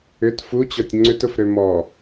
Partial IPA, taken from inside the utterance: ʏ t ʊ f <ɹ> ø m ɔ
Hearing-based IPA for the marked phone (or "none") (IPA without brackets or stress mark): ɾ